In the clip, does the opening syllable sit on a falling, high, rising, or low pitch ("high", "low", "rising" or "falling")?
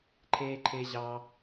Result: high